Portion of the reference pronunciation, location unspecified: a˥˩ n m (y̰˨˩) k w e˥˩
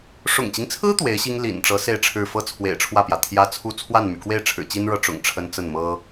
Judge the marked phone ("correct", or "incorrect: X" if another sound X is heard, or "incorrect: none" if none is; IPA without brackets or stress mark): correct